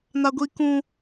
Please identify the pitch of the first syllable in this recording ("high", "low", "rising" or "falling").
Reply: high